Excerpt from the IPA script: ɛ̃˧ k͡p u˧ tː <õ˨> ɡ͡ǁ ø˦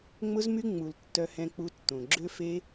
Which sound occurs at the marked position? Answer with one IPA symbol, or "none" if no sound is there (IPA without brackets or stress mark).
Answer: õ˨